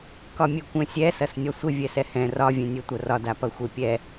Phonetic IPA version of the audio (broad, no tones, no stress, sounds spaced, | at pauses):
k ɒ mʲ e kʷ ɛ̃ sʲ ɛ s ɐ s nʲ ɒ sʷ ɪ vʲ ɛ s ɛ h ɛ̃ r ɒ vʲ ɛ̃ nʲ ɛ tʷ ɐ r ɒ d a p ɐ xʷ e pʲ ɛ